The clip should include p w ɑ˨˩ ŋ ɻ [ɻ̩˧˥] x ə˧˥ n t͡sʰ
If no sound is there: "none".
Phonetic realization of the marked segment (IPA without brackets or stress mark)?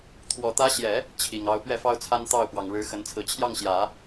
ɻ̩˧˥